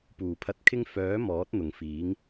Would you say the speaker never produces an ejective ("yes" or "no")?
yes